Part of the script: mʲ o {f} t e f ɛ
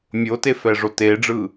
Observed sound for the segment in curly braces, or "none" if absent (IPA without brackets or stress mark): none